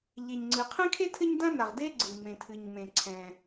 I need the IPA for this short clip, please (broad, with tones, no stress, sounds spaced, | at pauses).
ʎ e˩ ɲ ŋ͡ǀ ɨ˩ qʰ ɛ̃˥ kʰ e˥ tʰ ɘ˥ ɲ d ã˥ n a˩ ʁ d e˥ ɡ͡ǀ ɨ˩ m ẽ˩ tʰ ɨ˩ ɲ m ẽ˩ ǀʰ ɛ̃˩